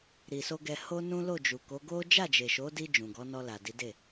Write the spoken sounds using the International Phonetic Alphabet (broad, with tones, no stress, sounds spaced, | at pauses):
ɾ i˨ s o˧ ɡ ɛ˧ h o˦ n ũ˦ l o˦˨ d͡ʒ u˨ k o˨˦ ɡ o˦ d͡ʒ a˦˨ d͡ʒ e˨ ʃ o˨˦ d i˧ d͡ʒ ũ˨ ɡ ɔ˨˦ n ɔ˧ l a˨ d i˨˦ d e˦˨